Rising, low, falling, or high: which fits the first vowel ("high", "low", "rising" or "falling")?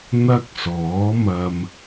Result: high